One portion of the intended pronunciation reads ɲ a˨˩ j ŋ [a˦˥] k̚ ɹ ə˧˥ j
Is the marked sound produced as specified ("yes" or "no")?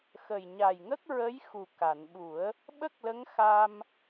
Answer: no